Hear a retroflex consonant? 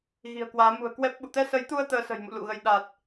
no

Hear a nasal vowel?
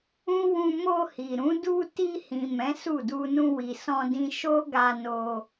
yes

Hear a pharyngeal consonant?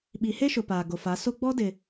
no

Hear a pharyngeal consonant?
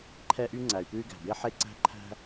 yes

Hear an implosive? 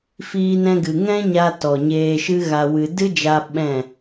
yes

